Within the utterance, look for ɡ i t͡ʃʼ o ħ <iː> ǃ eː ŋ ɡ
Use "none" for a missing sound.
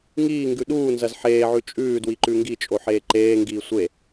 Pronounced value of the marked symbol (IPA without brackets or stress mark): eː